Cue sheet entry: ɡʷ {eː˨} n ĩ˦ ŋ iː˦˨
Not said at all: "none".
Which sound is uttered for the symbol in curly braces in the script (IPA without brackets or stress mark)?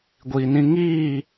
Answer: iː˨